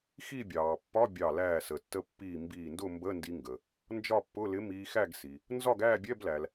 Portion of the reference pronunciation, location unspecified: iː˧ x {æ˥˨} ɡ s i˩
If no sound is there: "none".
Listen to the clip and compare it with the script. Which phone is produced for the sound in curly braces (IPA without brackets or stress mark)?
æ˥˨